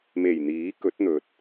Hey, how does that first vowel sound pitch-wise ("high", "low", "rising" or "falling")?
low